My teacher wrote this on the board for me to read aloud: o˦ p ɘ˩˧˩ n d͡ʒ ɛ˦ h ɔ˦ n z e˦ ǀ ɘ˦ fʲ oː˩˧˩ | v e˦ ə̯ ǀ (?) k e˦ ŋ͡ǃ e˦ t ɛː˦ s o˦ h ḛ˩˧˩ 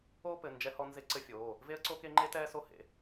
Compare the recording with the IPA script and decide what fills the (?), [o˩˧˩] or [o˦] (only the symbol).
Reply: o˦